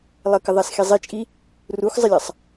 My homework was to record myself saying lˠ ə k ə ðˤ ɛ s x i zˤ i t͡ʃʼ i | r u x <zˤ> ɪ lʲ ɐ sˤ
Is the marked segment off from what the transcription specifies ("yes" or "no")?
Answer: no